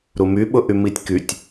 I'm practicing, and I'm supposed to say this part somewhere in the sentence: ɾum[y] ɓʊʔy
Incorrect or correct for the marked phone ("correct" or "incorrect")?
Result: correct